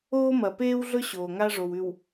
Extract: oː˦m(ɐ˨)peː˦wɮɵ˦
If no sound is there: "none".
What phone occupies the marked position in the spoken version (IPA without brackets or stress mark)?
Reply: ɐ˨